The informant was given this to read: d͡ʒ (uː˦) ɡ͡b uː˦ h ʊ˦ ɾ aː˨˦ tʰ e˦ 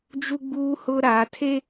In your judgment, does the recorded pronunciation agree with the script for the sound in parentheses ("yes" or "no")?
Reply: no